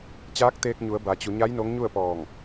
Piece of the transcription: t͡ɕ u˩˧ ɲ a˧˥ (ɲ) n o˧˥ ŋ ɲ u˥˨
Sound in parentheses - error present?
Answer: yes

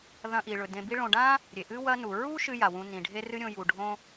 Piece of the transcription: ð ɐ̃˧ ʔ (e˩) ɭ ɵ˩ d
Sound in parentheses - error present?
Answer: yes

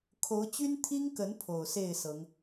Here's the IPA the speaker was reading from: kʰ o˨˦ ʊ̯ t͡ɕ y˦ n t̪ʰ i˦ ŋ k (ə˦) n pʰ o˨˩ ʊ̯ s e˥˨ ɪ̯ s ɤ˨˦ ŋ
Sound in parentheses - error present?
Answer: yes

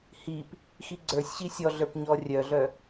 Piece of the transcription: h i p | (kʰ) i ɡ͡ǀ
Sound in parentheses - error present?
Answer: yes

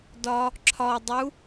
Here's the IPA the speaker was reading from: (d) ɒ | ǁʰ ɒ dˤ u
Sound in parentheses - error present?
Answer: no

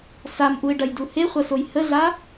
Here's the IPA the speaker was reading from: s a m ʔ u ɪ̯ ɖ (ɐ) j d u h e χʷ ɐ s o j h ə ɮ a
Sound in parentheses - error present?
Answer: no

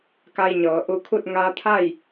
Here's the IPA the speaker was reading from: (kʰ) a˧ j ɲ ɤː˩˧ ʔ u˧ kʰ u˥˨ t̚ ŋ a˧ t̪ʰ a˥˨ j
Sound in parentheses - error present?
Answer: yes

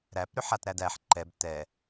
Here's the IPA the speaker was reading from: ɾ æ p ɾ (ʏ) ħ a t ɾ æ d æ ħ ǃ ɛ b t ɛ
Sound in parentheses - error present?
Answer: no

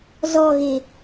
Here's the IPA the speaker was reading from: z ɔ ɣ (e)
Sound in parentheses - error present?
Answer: no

